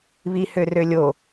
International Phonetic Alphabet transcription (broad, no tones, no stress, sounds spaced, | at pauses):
β i h ø r ø lʲ o